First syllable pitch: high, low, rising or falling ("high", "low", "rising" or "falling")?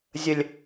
low